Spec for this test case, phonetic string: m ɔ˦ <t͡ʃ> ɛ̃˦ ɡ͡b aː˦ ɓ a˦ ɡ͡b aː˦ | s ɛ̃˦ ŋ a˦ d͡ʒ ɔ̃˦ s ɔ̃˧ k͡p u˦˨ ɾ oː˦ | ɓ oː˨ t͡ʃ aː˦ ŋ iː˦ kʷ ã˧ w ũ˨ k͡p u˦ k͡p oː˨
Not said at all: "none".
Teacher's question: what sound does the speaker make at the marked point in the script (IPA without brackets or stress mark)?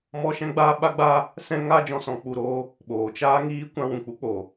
ʃ